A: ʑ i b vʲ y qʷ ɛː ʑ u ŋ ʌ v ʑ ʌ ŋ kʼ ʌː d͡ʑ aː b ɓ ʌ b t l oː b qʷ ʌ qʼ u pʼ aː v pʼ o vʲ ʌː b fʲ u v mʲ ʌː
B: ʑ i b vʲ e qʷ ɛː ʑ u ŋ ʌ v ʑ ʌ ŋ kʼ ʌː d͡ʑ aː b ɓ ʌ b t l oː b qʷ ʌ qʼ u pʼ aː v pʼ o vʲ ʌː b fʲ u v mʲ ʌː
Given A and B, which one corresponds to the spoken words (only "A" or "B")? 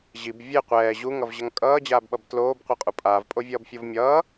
B